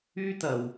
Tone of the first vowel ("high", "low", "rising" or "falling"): high